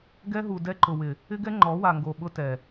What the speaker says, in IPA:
ɡɛ˦ɦu˨dɛ˦ ǃʊ˨wɪ˨ | ɪ˦ɡɛ˦ ŋ͡ǃɔ˨˦wa˨ŋɡo˨ɓʊ˦ tɛ˨

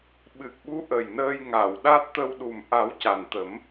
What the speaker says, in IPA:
ɓɨ˨˩k̚ɓu˧˥ʔə˨˩j nəː˧jŋa˨˩˨wɗa˦˥t̚t̪ə˧w ɗu˨˩mʔa˨˩˦w ca˨˩nt̪ə˨˩˦m

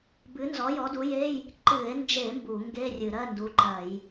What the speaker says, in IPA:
bɨ˨˥nzɔ˨˥ jɔ˨˥du˨˥je˧˥˧j | ǃɨ˧˩˧e̯nd͡ʒe˧˩˧ mbu˧˩˧ŋɡe˧˥˧ rʲɨ˧˩˧ɾɜ˧˥˧ndu˨˥ǃɜ˧˩˧j

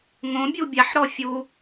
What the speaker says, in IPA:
ŋõbʲu bʲaħɾɔ fʲu

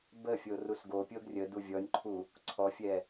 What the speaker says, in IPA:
bə fʲorusɡopʲoɡ rʲədu vʲɔnʲǃʰu | ǀʰɔfʲɛ

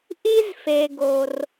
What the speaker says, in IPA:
ʔi˥zfe˨ ɡo˨r

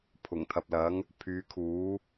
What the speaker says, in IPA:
pʰʊ˨˩ŋt̪ʰɐ˨p̚lɐ˨˥ŋ | pʰyː˨˧kʰuː˨˥

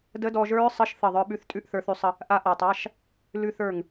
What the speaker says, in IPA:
də˦˥dɔ˧ʒə˞˦˥ɹsˤə˧˥˧ʃ θə˧˩ðˤə˞˧ɓʉ˧θ tʼʉ˧˥˧ʔθə˞˧θʉ˧sˤə˧ | ʔa˦˥ʔa˧tˤa˧˥˧ʃ | lʉ˧ θə˞˧˩ŋ

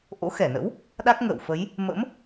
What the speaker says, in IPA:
ʔo̰˧˥xɛ˧˩nə̰˧˥w | ɗa˦˥k̚ŋə̰ː˧˨wfə˨˦j | mə̰˧˥m

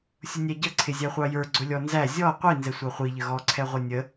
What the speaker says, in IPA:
sʲʊnʲæɟʌ ǀʰɪzʲæχʷɑjə˞ ɡ͡ǀʊlʲɔnzæ zʲɔ qʷi nzɛsʷɑχʷi ʎəɣɔ ǀʰɛʁʷʌnʲə

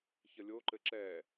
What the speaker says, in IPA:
çəlʲoǃɘ ǁɛ

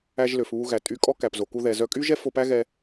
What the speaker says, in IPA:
æ˧ʒlø˩f βu˧ɣæ˩tʼy˧kʼɔ˥ kæ˩pzo˩ku˧ ðɛ˩zœ˧ kʼy˥ʒɛ˥ fo˧pæ˥ɣɛ˧

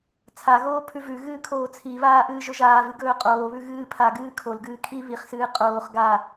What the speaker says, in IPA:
t͡sʰaɣoː pʰʉvʉɣɨː kʰoːt͡sʰiβaː ʔɨːʒɵʒaːvɨ ɡɵːqʼoːβʉ ɣɨː pʰaɡɨː kʰolɡɨː kʰi βiχsɨː qʼoːχ ɡa

